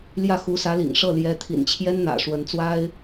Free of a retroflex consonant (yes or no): no